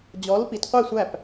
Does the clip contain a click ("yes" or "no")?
no